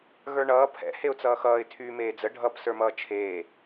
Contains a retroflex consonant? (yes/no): yes